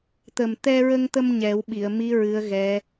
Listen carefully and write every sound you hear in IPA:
t̪ ə˨˩ m t̪ ɛ˧ ɹ ə˧ ŋ t̪ ə˧ m ɲ ɛ˨˩˦ w ɓ i˨˩˨ ə̯ m i˧˥ ɹ ɨ˧˥ ə̯ ɣ ɛ˧˥

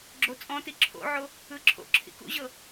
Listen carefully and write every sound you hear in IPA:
ɡ͡ǁ o t͡sʼ ɔ̃ t i ǁʰ o̰ ʕ o | ɯ ǁʰ o̰ ǁʰ ḭ k ṵ ʑ ɤ

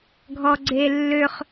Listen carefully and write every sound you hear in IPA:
ɡʱ ɔ ɡ͡ǀ e lː ø χ

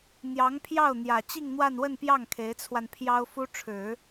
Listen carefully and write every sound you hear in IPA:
n̪ j ɑ˧˥ ŋ pʰ j ɑ˥˩ ʊ̯ n̪ j ä˨˩ t͡ɕ i˥˧ ŋ n̪ w a˥˧ n w ə˥˧ n p j ɑ˥˩ ŋ kʰ e˧˥ ɪ̯ t͡sʰ w a˧ n pʰ j ɑ˥ ʊ̯ f u˥ ʈ͡ʂʰ ɻ̩˨˩˦

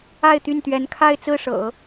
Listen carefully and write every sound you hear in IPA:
a˥˧ ɪ̯ t̪ y˥˩ n t̪ ɥ ɛ˧˥ n kʰ a˥˧ ɪ̯ t͡s ɹ̩˥˩ ʂ ɤ̰˨˩˦

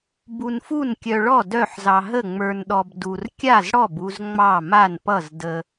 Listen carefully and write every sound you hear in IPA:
b u˧ n f u˥˨ n kʲ œ˧ ɭ ɔ˥˨ d œ˥˨ ħ z ɑ˧ ɦ ə˥˨ ŋ͡m ə˞˧ n ɗ ɔ˧ b d u˧ r kʲ a˥˨ z ɽ ɔ˥˨ b u˧ z ŋ͡m ɑ˥˨ m a˥˨ n p ʌ˥˨ z d ə˧

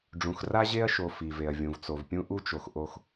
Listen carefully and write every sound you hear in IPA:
ɖ͡ʐ ũ˨ x r a˦ ʑ e˦ ɐ̯ ʃ o˨ f i˨ v e˨ ɐ̯ vʲ ũ˨ v t͡s o˨ v pʲ ũ˦ ʔ u˦ t͡ʃ o˨ x ʔ o˦ x

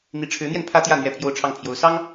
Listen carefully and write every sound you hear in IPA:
n̪ i˧˥ ʈ͡ʂʰ ɻ̩˧˥ n̪ j ɛ˧ n pʰ ä˥ t̪ j ä˥˧ n̪ ɥ ɛ˥˧ pʰ j o˥˧ ʊ̯ ʈ͡ʂʰ ɑ˥˩ ŋ pʰ j o˧˥ ʊ̯ s ɑ˥ ŋ

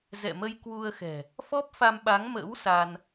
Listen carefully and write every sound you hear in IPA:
z ɛ̰˧˨ m ə˧ j k w u˧ ə̯ x ɛ̤˨˩ | f ɔ˦˥ p̚ f a˧ m ɓ a˨˦ ŋ m ə̰ː˧˥ w s a˧ n

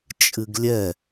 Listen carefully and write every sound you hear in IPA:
t͡ʃʼ ɨ ɡ lʲ ɛ

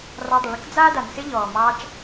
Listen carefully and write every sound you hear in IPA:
r ɑ˧ dˤ ɪ˩ ɭ ɪ˥ k d͡z aː˥ d a˩ n s ɪ˥ ʎ ɔː˩ m ɑː˧ t͡ʃ

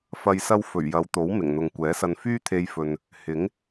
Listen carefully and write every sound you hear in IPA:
f ɐ˨ j s ɐ˧ w f ɵ˨˩ ɥ j ɐ˨˧ w t̪ o˨˥ w m ɪ˨˩ ŋ n̪ ʊ˨ ŋ kʷ ɛː˨˥ s ɐ˧ n f yː˥ t̪ʰ e˧ j f ɵ˨ n | h ɪ˨˥ ŋ

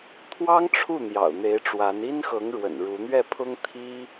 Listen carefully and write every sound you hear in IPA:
t̪ʰ w ɑ˥ ŋ ʈ͡ʂʰ u˥˩ n̪ j ɑ̰˨˩ ʊ̯ n̪ e˧˥ ɪ̯ ʈ͡ʂ w a˧˥ n i˥ n x ɤ˧˥ ŋ ɻ w ə̰˨˩ n ɻ u˧˥ n̪ ɥ ɛ˥˩ pʰ ʊ˥ ŋ t̪ʰ i˥

